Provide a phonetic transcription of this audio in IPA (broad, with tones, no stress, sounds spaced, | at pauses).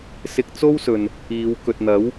s ɪ˧ k̚ t͡s o˥ w s ɵ˨ n | iː˨˧ w k ɵ˨ t̚ n̪ ɐ˨˥ w